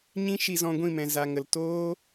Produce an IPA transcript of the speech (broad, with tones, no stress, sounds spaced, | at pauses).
ɲ ĩ˦ ʃ i˧ z ɔ̃˧ ɡʷ ĩ˦˨ m ɛ̃˨ z a˨ ŋ ə˨ l t oː˦